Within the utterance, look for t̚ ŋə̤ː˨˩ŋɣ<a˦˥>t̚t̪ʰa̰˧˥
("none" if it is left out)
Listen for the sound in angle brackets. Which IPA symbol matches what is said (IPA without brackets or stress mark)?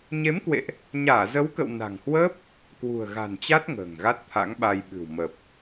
a˦˥